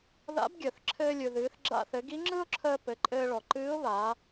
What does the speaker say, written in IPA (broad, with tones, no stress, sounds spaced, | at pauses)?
ð a̰˧˥ b ɡʲ əː˩ θ ǁʰ ɘː˧ lʲ ɯ˩ ð ɨː˩˧ θ ɡ͡ǁ a̰˧ θ ɘ˩˧ ɡ i˧˥ ŋ͡ǁ ɯ˥ ʊ̯ ǁʰ əː˧ p ɘ˩˧ ǃʼ ɘː˧ ɭ ɔ˩ ǃ ɨː˧˥ ʊ̯ β aː˩˧